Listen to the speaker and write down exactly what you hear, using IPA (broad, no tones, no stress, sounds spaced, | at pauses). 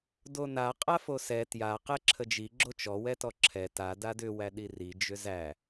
d o n a qʼ a f o s ɛ t j a q ɛ ǁʰ ə d͡ʒ i ɡ͡ǁ o t͡ʃ ɔ w ɛ t ɔ ǁʰ ɛ t a d a d ʏ w æ ɗ i r i d͡ʒ ʏ z æ